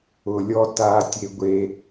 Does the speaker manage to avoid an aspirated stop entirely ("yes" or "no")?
yes